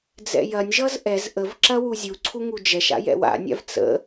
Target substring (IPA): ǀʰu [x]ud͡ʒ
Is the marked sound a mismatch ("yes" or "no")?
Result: yes